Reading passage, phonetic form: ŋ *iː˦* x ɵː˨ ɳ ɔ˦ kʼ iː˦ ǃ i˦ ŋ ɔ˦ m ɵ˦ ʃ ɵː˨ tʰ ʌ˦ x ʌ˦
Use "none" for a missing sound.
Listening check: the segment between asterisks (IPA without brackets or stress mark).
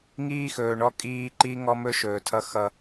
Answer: iː˦